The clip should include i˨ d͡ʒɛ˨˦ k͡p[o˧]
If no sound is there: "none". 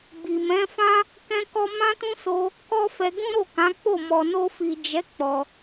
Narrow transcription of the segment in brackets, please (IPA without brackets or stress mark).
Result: ɔ˧